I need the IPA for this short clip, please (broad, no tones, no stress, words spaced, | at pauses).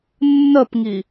nːəpŋi